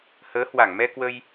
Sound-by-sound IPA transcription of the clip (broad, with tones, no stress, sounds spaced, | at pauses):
h əː˨˦ h w a˧˩ ŋ m ɛ˧ k w ə˧ j